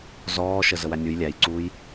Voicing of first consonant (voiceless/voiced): voiced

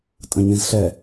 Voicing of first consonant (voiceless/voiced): voiceless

